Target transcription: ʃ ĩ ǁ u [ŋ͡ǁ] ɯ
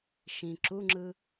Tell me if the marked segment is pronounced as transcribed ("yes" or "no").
yes